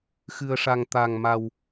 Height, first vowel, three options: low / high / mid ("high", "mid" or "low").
high